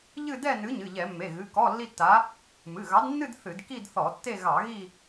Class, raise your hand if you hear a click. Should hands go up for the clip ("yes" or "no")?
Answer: no